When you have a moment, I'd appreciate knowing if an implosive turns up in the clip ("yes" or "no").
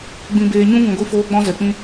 no